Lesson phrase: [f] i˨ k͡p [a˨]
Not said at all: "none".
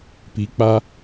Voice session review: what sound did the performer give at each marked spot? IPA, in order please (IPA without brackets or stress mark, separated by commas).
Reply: p, a˦